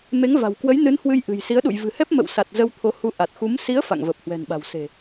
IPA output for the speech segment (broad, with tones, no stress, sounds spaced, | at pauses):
m e˨˦ ŋ v a̤˨˩ w k w ə˨˦ j n ɨ˨˦ n h w ɨ˧ j ʔ ɨ̤˨˩ j s i˨˦ ə̯ ɗ ṵ˧˨ j v ɨ̤˨˩ h ɛ˦˥ p̚ m ə̰˧˨ w s a˨˩ t̚ z ə˧ w t̪ʰ o˨˦ h u˧ ʔ a˨˩ t̚ x u˨˦ m s i˨˦ ə̯ f a̰˧˨ ŋ v ə˨˩ p̚ h w ɛ̤˨˩ n ɓ a̤˨˩ w s e̤˨˩